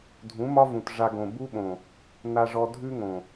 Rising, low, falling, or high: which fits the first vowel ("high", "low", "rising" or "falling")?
rising